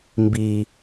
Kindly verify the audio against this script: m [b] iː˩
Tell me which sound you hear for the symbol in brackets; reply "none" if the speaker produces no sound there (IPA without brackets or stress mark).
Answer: b